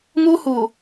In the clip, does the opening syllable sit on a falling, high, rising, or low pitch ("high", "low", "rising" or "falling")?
high